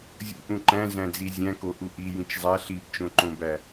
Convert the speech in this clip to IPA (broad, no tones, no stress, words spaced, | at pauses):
zʲṵʔũ ǃæ̃zæ̃d͡zi zʲæ̃ko ʔuʔi jĩt͡ʃzˤæ ɬibt͡ʃõǃõbæ